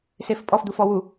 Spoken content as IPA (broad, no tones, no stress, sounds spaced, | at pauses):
s e f pʼ ɔ f d̪ u f ɔ w u